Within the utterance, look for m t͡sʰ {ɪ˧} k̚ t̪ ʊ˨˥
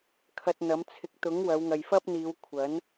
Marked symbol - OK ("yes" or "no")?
no